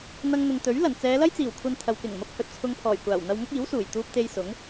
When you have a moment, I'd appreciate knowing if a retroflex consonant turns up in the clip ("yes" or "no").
no